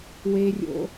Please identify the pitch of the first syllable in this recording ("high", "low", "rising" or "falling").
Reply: high